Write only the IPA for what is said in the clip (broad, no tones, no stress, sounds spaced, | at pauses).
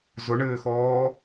z ʊ ɳ ɘː x ɔː